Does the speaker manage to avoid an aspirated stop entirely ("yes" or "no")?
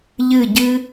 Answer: yes